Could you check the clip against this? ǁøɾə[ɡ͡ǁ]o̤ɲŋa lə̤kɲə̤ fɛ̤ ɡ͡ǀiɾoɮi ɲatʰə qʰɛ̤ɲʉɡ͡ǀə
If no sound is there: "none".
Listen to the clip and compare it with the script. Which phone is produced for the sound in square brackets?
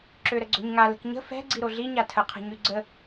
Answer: ɡ͡ǀ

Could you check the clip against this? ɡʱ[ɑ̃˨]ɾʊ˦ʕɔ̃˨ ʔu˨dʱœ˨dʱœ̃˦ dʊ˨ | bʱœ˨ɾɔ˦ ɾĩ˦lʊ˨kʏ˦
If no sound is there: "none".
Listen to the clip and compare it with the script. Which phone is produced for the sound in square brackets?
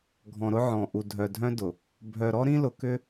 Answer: ɔ̃˨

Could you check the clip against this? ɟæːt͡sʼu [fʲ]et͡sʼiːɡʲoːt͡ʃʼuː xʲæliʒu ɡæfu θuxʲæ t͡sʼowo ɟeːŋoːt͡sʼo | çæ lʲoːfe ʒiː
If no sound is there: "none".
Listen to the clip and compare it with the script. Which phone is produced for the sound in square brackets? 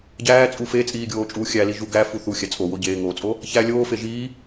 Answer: f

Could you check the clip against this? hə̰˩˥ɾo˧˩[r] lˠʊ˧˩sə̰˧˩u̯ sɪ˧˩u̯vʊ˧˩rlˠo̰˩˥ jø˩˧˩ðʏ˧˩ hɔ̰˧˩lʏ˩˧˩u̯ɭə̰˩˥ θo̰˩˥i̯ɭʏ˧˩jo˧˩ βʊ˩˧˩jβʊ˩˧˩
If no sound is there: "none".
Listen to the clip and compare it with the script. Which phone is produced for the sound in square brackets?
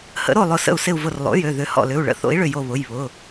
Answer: none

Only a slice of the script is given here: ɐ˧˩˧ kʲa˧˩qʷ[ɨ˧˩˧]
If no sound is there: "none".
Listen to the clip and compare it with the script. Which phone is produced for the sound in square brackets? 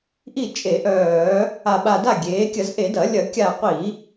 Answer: i˧˩˧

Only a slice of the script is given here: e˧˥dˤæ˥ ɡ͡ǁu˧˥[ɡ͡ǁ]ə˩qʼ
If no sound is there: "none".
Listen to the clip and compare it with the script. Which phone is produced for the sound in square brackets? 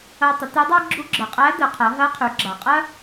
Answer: ɡ͡ǁ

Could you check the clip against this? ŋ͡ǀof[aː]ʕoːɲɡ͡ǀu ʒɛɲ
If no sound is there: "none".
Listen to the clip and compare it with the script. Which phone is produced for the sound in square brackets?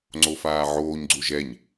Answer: aː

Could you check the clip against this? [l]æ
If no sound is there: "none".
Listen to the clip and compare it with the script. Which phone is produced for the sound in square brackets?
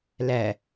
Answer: l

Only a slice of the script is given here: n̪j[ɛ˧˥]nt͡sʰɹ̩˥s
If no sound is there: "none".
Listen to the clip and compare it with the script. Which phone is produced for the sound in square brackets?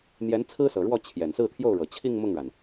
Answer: ɛ˧˥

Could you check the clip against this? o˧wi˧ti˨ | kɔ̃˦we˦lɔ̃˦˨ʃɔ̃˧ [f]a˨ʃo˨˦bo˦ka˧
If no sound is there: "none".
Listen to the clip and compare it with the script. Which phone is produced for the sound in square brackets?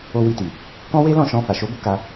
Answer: f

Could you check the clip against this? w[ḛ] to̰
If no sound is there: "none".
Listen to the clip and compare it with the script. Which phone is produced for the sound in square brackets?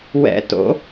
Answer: ɛ̰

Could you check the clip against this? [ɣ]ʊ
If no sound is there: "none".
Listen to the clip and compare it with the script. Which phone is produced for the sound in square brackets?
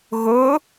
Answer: ɣ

